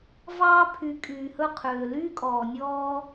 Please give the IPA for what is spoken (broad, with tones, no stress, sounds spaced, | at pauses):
v ɑː˦ pʰ y˨˦ kʼ yː˨ h ɵ˦ qʰ øː˨ l yː˦ kʼ ɔː˨ nʲ ɔː˦